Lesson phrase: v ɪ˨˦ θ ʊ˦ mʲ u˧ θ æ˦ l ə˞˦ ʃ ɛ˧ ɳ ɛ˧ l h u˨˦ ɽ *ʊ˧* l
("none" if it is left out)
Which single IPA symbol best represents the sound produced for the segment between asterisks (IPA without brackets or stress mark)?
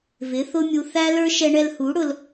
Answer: ʊ˧